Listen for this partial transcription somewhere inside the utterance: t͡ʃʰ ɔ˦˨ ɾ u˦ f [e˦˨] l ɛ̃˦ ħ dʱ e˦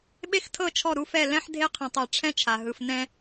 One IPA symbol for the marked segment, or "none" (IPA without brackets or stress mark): ɛ˦˨